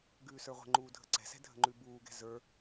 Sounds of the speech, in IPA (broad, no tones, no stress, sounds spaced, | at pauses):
ɡ ʉː s ə˞ ʁʷ ə̤ ŋ͡ǃ uː dʱ ə̤ ǀ ɛ̤ s ɛ̤ dʱ ə̤ ŋ͡ǃ ʉ b uː ɡ ɛ̤ z ə˞